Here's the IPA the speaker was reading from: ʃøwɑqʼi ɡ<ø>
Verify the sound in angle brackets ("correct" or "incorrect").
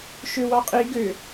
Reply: correct